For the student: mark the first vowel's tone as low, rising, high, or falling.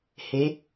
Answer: rising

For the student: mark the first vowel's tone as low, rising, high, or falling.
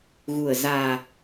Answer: low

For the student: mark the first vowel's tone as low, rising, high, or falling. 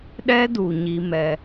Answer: high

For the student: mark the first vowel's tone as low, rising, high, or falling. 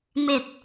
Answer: low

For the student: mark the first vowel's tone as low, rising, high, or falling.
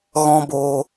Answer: high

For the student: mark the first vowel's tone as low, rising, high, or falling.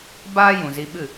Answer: high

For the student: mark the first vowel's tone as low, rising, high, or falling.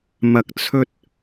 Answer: low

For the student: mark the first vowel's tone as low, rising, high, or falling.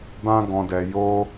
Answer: high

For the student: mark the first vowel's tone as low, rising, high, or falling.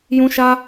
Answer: high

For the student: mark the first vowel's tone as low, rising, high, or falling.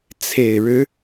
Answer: low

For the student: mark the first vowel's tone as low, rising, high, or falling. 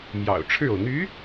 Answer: low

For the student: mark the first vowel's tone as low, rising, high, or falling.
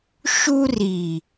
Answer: high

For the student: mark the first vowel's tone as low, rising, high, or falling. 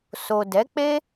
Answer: low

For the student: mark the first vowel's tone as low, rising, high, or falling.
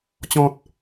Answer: low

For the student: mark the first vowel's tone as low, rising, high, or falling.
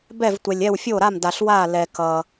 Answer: falling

